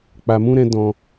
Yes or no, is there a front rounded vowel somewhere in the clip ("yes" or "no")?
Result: no